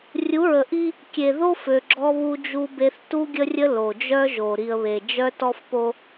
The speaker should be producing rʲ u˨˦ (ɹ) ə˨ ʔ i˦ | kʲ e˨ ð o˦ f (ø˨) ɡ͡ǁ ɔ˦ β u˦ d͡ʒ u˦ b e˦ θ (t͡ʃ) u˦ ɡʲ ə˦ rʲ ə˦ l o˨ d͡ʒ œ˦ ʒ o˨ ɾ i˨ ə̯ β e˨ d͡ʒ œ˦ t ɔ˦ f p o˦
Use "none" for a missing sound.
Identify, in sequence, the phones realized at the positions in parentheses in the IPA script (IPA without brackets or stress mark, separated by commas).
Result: ɹ, ø˨, t